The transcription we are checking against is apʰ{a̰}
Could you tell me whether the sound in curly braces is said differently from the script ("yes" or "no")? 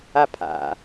no